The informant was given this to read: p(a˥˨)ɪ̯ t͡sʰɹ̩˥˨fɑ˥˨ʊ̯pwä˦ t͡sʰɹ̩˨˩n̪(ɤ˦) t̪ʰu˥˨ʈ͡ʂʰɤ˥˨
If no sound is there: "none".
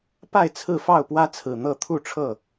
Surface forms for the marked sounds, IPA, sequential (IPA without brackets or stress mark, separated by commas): a˥˨, ɤ˥˨